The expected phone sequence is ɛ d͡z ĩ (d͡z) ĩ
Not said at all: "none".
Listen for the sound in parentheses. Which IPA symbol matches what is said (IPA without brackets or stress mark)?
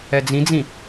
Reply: d͡z